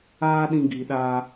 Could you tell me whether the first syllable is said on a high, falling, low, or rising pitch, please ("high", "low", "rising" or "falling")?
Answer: high